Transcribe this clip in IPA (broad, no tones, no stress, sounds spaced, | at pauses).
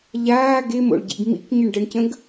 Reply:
ʎ aː ɡ e m o̰ ɭ ɟ ḭ ɡ m ḭ k ɲ ə ɳ ɖ ə ɳ c ə̃ ɡ